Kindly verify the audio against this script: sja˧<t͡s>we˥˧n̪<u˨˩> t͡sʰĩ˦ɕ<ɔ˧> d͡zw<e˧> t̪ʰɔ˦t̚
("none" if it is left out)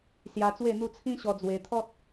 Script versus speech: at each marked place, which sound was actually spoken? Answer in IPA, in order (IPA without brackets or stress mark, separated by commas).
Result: t͡s, u˥˧, ɔ˧, e˧